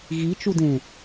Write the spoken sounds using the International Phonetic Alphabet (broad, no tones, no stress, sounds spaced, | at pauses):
ɣ i t͡ʃ u d ẽ